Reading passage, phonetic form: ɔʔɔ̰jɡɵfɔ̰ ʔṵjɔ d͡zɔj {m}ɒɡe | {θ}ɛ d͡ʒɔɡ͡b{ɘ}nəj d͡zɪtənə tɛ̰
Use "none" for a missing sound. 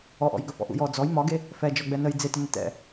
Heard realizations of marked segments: m, f, ɛ

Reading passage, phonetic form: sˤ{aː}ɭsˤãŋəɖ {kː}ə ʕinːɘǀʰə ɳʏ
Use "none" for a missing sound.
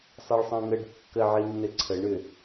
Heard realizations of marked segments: a, kː

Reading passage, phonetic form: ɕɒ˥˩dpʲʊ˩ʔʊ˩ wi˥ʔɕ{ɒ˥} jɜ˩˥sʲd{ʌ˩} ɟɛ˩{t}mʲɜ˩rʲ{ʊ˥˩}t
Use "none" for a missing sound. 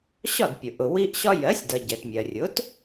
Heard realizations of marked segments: ɒ˥, ʌ˩, t, ʊ˩˥

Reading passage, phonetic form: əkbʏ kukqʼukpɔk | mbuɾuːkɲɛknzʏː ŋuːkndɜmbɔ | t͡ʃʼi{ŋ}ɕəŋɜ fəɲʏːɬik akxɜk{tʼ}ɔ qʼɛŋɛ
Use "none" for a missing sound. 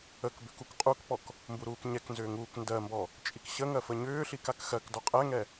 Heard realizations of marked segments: k, d

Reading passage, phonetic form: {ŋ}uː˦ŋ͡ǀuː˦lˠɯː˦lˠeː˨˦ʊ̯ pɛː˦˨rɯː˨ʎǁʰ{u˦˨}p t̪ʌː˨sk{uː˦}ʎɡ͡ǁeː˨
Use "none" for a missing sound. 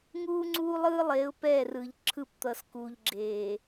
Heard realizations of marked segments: ŋ, ɯ˦˨, uː˨

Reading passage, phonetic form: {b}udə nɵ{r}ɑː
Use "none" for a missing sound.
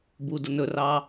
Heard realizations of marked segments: b, r

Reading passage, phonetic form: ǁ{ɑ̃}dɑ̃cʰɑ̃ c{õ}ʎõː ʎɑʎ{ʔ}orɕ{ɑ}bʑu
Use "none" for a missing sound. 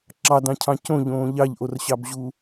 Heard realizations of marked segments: ɑ, õ, ʔ, ɑ

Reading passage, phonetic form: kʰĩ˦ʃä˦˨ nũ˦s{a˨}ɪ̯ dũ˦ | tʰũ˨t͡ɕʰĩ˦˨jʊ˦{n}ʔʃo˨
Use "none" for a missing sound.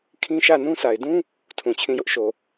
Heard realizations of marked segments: a˨, none

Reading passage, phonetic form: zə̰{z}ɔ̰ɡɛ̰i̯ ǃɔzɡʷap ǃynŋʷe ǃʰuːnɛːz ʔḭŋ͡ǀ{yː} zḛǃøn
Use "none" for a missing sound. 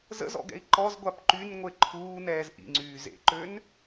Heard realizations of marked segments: z, yː

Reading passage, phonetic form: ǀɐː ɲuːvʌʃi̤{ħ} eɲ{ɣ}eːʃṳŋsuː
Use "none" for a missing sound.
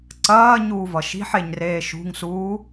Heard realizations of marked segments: ħ, r

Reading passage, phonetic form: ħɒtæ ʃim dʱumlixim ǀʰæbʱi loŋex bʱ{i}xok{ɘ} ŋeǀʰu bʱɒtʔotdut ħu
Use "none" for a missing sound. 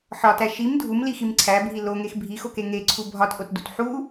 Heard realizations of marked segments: i, e

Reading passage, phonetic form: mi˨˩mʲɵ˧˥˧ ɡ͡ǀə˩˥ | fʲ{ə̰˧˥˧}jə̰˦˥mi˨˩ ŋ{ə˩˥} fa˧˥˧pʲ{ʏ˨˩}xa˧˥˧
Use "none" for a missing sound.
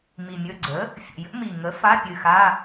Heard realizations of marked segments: ə̰˨˩, ə˩˥, ɨ˨˩

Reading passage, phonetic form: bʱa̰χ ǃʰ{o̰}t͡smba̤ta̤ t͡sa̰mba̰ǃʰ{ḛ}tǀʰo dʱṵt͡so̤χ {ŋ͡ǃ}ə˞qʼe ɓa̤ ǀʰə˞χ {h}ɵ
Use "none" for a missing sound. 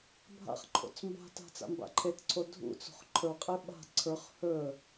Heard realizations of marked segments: o̰, e, ǃʰ, h

